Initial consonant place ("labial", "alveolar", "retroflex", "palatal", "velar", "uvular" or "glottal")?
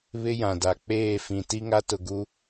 labial